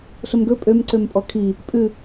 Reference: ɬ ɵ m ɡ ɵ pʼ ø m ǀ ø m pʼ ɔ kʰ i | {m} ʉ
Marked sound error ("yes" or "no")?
yes